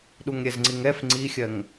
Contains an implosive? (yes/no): yes